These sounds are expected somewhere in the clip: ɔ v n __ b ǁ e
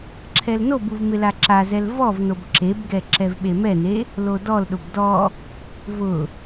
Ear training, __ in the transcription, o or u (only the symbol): o